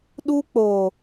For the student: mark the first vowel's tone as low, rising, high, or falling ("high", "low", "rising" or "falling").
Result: high